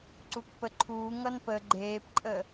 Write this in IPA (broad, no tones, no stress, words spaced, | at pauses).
ǀukpəǃʰuː ŋʌnpə ɡ͡ǃeːpǃʼə